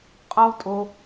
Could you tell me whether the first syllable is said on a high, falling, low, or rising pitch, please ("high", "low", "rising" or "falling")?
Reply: high